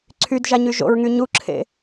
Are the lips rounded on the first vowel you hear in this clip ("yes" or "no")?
yes